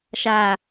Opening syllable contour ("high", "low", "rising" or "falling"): low